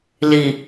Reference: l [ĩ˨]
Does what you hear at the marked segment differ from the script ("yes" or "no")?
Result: yes